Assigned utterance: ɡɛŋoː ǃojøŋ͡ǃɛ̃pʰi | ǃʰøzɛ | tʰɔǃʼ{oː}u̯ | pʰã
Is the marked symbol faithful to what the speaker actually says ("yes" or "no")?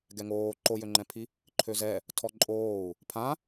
yes